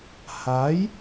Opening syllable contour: rising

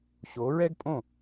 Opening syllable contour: rising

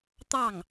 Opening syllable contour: falling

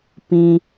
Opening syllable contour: low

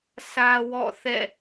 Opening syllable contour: high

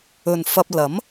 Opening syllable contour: low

